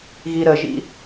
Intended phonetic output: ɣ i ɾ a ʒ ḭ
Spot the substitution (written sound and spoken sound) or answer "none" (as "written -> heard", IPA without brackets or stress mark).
a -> ə